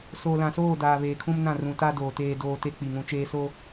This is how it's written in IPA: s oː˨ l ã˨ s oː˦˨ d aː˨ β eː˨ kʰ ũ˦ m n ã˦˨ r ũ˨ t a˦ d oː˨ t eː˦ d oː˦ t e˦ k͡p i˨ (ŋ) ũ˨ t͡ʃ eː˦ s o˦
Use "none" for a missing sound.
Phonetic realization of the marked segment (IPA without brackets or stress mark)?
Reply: ŋ